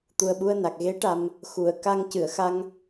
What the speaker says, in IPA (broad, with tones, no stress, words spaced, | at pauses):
t̪u˨˩ə̯ɓu˧ə̯na˨˩k̚ ɣe˧˥ ʈa˨˩m | xu˨˩˨ə̯ka˧ŋ cɨ˨˩˨ə̯xa˧ŋ